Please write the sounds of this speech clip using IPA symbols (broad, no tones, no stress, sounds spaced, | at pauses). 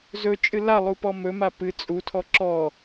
z ɵ t͡ʃʼ ɨ l a lˠ u p ɔ m ɵ m a p ɨ t͡sʼ u tʰ ɔ ǁ ɔ